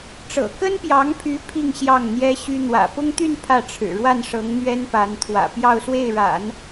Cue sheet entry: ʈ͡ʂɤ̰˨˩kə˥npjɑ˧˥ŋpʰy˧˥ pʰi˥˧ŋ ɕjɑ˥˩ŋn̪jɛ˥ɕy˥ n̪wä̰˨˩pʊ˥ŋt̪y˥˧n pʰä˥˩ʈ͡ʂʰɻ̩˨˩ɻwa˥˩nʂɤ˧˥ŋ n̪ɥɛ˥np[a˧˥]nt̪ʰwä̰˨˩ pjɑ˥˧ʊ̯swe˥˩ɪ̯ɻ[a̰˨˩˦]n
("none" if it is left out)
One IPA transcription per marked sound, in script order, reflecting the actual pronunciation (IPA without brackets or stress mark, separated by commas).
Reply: a˧˥, a̰˨˩˦